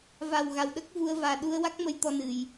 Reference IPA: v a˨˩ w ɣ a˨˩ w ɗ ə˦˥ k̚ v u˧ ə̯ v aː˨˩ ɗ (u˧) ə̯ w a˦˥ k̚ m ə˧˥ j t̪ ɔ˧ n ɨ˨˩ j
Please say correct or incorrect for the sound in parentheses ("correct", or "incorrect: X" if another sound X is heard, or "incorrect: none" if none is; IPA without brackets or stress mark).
correct